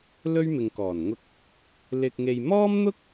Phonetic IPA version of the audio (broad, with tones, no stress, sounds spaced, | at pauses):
l ɵ˥ ɥ m ɪ˨ ŋ k ɔː˨˩ n ŋ ʊ˧ k̚ | l ɪ˧ k̚ ŋ e˧ j m ɔː˥ m n̪ ʊ˥ k̚